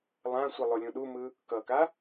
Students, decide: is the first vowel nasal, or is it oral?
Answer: nasal